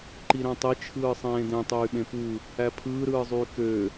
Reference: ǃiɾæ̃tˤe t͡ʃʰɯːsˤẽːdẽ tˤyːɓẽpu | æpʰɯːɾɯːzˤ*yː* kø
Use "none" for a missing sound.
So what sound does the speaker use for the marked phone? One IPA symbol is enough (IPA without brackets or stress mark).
yː